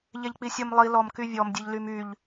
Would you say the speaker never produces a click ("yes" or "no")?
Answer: yes